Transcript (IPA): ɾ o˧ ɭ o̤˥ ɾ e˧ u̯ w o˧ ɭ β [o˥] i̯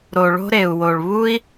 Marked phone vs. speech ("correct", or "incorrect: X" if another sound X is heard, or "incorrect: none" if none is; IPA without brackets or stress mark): incorrect: u˥